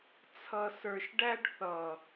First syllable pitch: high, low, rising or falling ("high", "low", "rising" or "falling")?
low